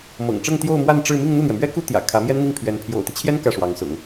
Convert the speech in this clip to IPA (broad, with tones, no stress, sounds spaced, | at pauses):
m ɤ̰˨˩ ŋ ʈ͡ʂ ɤ˥˧ ŋ t̪ j o˥˧ ʊ̯ m w a˥˧ n ʈ͡ʂ ɻ̩˥˧ m i˥˧ ŋ n̪ u˥˩ n̪ j ɛ˩ m ɥ ɛ˥ k u˥ t̪ j ä̰˨˩ kʰ ä˧˥ m j ɛ˥ n n̪ i˥˩ ŋ pʰ ɥ ɛ˧˥ n pʰ j o̰˨˩ ʊ̯ t̪ i˦ t͡ɕʰ j ɛ˥ n k ä˥˩ ʂ w ɑ˧˥ ŋ s ʊ̰˨˩˦ ŋ